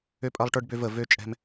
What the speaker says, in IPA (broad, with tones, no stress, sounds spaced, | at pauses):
ø˦ pʼ ɐ˦ lˠ ʈ ə˞˦ ɖ b ø˦ v ə˦˨ v ø˦ t͡ʃʼ ɛ̤˦ m